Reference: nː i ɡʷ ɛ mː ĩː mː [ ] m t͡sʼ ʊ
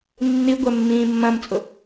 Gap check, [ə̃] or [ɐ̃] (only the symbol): ɐ̃